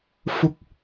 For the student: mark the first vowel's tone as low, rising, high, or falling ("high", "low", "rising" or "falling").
low